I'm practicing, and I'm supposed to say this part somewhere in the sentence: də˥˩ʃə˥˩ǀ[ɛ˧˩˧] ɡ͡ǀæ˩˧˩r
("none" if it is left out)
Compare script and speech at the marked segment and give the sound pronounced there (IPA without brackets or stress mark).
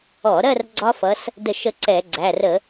ɛ˧˩˧